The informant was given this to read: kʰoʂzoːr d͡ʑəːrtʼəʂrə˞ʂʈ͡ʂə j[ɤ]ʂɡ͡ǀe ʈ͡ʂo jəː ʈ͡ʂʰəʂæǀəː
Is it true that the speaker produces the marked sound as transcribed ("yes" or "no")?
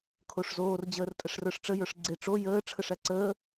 no